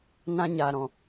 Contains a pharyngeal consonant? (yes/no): no